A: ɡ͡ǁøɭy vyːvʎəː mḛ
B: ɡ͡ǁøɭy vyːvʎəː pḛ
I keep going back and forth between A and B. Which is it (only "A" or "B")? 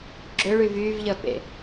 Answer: B